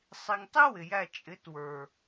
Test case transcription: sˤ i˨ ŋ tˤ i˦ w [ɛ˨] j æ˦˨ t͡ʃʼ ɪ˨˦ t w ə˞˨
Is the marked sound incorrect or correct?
incorrect